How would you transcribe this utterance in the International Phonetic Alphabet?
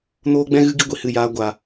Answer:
n oː˦ ɡ͡b ɛ̃˦ ɣ ɨ˦ ɡ i˦ ɡʷ i˨ h ɨ˦˨ j aː˧ ɡʷ aː˨

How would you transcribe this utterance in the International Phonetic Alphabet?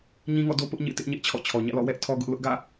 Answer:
ɲ ĩ˦ ŋ ɔ̰˦˨ d o˦ p ʊ˦ ʔ ɲ ḛ˦˨ t ɪ˦ ʔ ɲ ɛ˦ ʔ t͡ɕʰ ɔ̰˦˨ t͡ɕʰ ɔ˨ ɲ ä̰˦˨ l ɔ̰˦˨ w ɛ˦ ʔ tʰ ɔ˦ ɡ ʊ˦ ʔ l ʊ˦ ʔ ɡ ä̰˦˨

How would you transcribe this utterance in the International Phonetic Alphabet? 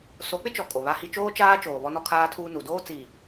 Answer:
s o˨˦ k͡p ɪ˦ t͡ʃ ɔ˨ kʼ o˨ β a˦ h i˦ t͡ʃ oː˦ t͡ʃ aː˦ t͡ʃ oː˨ β ɔ˦ n ɔ˦ kʰ aː˦ tʰ uː˦ n u˨ d oː˦ t͡s i˨

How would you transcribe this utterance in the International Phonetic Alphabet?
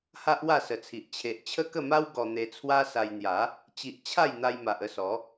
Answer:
h a˦ ʔ w a˥˧ s ə˨˩ t͡sʰ i˨ ʔ t͡ɕʰ e˨ ʔ t͡ɕʰ ə˦ k ə˥˧ m a˦ w ɡ ɔ˧ n̪ e˧ t͡sʰ w a˦ s a˧ j n̪ j a˨˦ | t͡ɕ i˨ ʔ t͡ɕʰ a˥˧ j n̪ a˧ j m a˨ ʔ ə˥˧ s ɔ˨˦

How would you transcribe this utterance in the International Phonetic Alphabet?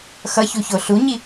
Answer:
x ʌ ç u ç o ɬ u ɲ i

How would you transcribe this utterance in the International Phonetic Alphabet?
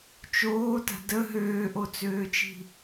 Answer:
t͡ʃ oː t a̤ d ə ɦ øː ʔ o t͡s øː t͡ʃ i̤

